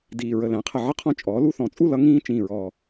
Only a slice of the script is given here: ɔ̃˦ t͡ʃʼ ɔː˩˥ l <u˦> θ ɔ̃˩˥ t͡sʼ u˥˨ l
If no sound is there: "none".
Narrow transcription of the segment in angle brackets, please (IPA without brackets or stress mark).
u˦